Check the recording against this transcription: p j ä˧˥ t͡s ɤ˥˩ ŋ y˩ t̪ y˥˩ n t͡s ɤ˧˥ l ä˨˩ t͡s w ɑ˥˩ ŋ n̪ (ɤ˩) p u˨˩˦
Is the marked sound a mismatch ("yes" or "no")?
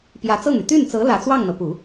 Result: no